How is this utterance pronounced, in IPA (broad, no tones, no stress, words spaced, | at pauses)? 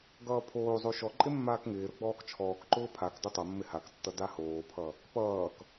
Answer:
ɡʌːpʰoːzˤo ʃɔǃʼɪ mːaːkŋɪːɾʊ ɡ͡bɔːkt͡ʃʰɔːkǃʊː pʰak dʊtˤʌmːɪ haktːʌ dahoːpʰʌ | pʌːk